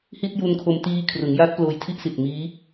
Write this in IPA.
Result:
hi˥˩t̚ju˧nkʰo˧m tiː˧kʰrɯ˩˦ŋja˦˥t̚ ploː˧jtʰi˥˩ʔsi˨˩t̚ miː˦˥

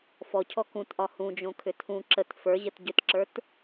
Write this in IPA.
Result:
fɔcʰɔ kũtʔɒ hũd͡ʒõkʰʏ tʰũ ǁət fə˞ʑət ɟʏtǁə˞t

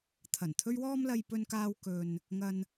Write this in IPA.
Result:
t̪ʰɐ˨˩nt̪ʰɵ˥ɥ wɔː˧mlɐ˨jpɵ˨nkaː˨w kɵ˨n | ŋɐ˧n

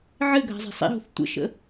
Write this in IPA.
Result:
ʕɘɡʱa̤zˤi̤ sˤḭɦo̤θ tʷə̰ʃə̰

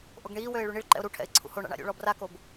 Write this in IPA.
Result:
ʔoɡɳiːwøɪ̯ ɭyɳiɭǃɛ̰ʊ̯ ɾuʈʰɛ̰ɪ̯ ǀʰṵhoɳa̰ɳ a̰ɾʲṵɭɔ brakob

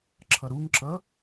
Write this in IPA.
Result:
ǁʰʌɾuŋǁʌ

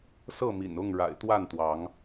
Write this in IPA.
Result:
sɤ˥˨mḭ˨˩nʊ˥˨ŋɻa̰˨˩ɪ̯ t̪wa˥˨nt̪wɑ˨˦ŋ

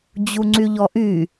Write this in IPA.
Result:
d͡ʑuŋ͡ǀyʎɔʔy

